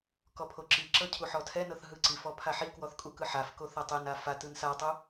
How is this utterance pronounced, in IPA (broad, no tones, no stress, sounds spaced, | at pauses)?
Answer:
k ɔ pʰ o ǁ i ǁ ɤ cʰ u ħ ɔ tʰ ɛ n ɤ θ ɦ ɯ ǀ i f ɔ pʰ a ħ i k w ɔ θ kʼ u k ɯ ħ a f k o θ ɤ tˤ e n a f a t ɯ n s a tˤ u